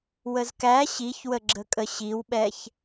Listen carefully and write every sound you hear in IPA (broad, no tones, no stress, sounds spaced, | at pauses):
w ə z k æ ɕ i ç w ə ɡ͡ǁ ə kʼ ə ɕ i w ɓ ɛ ç